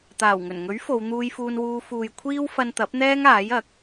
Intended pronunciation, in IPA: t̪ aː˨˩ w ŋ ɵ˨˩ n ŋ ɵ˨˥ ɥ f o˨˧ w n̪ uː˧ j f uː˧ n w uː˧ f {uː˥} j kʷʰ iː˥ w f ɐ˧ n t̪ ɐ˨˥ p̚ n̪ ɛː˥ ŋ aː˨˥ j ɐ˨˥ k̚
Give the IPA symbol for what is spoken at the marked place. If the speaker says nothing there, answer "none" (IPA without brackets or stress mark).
uː˨